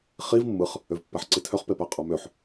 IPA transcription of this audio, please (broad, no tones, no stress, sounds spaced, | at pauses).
χ i v mː ɯ χ | ø v pː æ ħ ǀ i tʰ ø χ p e p æ qʼ ɑ m ø ħ